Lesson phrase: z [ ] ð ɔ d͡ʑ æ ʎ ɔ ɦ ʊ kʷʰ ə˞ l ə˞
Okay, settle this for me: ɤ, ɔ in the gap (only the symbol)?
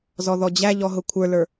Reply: ɔ